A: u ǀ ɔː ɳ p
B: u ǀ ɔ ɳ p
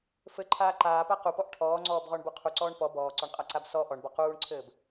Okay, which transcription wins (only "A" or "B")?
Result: A